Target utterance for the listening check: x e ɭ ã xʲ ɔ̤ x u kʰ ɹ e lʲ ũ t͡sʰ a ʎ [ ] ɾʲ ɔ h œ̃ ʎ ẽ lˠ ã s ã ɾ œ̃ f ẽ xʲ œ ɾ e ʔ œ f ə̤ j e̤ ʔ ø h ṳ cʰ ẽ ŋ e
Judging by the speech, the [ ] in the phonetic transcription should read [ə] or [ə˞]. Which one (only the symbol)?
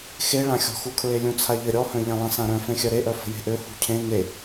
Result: ə